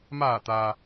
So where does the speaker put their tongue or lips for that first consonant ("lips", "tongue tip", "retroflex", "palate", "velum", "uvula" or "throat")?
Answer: lips